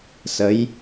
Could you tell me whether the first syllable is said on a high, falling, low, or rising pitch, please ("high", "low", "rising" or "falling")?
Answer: rising